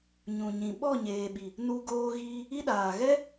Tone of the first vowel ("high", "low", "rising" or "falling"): low